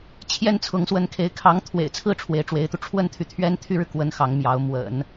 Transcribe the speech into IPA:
t͡ɕʰjɛ˥˩nt͡sʰʊ˧˥ŋswə˧˥nkʰe˧˥ɪ̯ kʰɑ˧˥ŋ t̪ʰwḛ˨˩ɪ̯t͡sʰɹ̩˥˩ ʈ͡ʂʰwe˧˥ɪ̯ʈ͡ʂwe˧˥ɪ̯t̪u˧ ʈ͡ʂʰwə˥nt̪ʰy˨t̪ʰɥɛ˥n t̪ʰy˥ɻɻ̩˨kwə˧˥n xɑ˧˥ŋmjɑ˧˥ʊ̯ mwə̰˨˩˦n

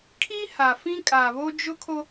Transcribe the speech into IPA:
kʰi˦ha˨fĩ˦ kʼa˨βo˦d͡ʒʊ˦kʰo˦

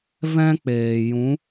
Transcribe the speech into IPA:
vɛ̃˦k͡peː˨ jũ˨˦

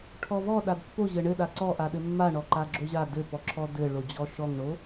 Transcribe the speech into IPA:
ʈʰɔvɔ ɗadpːo ʑɘɳɘ ɗaǀɔʔa ɗɘmːaɳɔ ǃaɡ͡ǁoʑa dɘpɔǁʰɔ dɘɭo d͡ʑɔʃɔŋɳo

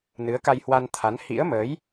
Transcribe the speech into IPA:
nɨ˨˦ə̯ka˧jhwa˧nt̪ʰa˨˦n hḭ˧˥ə̯məː˨˦j

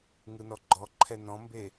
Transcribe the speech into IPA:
ŋɯnɔɡ͡ǃɔǃʰɛ nɔ̃mbe

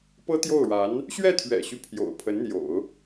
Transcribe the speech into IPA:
pɤ˥t̪jo˥˩ʊ̯ɻa˧˥n | ɕɥɛ˥˩t̪ʰɥɛ̰˨˩ɕy˦ pʰjo̰˨˩ʊ̯pʰə˧˥nn̪jo̰˨˩˦ʊ̯

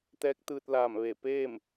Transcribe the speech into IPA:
t̪ɛː˧˥k̚t̪ɯː˧t̚laː˧˩mʋe˧˩ peː˥˨m

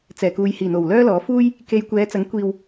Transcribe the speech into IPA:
t͡sɛː˨˩kuː˨jhiː˨˩n̪o˨˩w lœː˥lɔː˨˥fuː˥j | ke˧jkʷɛː˨˧t͡sɐ˨˥ŋ kʷiː˨w

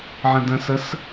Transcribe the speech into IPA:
ʕə̃də̃səs

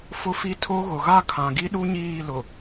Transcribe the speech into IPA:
fʊ˦ fi˦ tʰo˦ɣʊ˨ ɣa˦˨kʰã˨ɡi˦ɗu˦ ɲiː˦˨lʊ˨

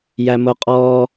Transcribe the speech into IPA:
jæmoqʼɔː

